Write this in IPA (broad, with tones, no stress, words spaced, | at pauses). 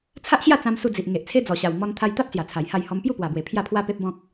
t͡sʰa˦ʔɕja˥˧t͡sã˧m su˧d͡zi˨ʔ ŋe˨ʔt͡sʰe˦d͡zɔ˨˩ɕa˨˩w mɔ˧nt̪ʰa˧jt̪a˦p̚ sja˨˩t͡sʰa˨˩jha˥˧jhɔ˦m pju˥˧pwa˨˩bwe˨˩ pʰja˥˧pʰwa˦pe˦p̚bɔ̃˦k̚